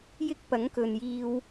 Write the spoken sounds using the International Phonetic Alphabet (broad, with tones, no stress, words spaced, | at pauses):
jɪ˥k̚pɐ˨˥ŋkɵ˨njiː˧w